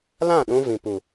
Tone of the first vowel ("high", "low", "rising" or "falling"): falling